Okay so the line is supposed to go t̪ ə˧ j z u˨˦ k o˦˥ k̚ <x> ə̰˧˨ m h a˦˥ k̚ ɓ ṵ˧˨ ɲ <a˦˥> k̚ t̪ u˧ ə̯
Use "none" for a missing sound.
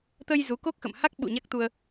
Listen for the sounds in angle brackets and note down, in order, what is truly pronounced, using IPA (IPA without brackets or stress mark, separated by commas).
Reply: x, a˦˥